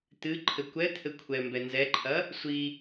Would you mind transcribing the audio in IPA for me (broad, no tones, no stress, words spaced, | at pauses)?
t̪ɨ ǃʰɘkʷɛ t̪ʰɘkʷʰɛ mbɛnzɛǃʰɐ | sʷi